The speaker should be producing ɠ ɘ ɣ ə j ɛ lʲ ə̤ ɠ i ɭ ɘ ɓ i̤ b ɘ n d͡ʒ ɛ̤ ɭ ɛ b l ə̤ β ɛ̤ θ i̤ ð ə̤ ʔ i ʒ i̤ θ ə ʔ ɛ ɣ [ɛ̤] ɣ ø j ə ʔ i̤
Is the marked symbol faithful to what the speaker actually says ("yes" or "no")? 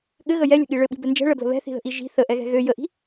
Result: yes